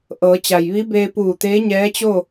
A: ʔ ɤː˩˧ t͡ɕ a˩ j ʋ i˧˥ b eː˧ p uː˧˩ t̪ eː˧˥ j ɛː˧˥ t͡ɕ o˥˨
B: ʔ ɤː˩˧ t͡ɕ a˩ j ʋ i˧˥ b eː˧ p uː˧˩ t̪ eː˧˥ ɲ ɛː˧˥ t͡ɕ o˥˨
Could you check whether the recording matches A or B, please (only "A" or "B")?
B